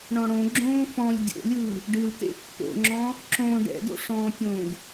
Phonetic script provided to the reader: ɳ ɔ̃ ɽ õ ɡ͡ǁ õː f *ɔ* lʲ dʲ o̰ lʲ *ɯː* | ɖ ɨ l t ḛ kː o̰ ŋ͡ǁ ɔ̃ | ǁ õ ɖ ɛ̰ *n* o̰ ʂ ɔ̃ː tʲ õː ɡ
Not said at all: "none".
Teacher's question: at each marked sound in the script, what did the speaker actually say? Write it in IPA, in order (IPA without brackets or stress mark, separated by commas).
ɔ̃, ɯː, d